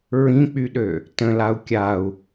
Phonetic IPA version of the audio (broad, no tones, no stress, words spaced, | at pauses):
ɹĩk͡pyɗø | tə̃lau̯ kʲau̯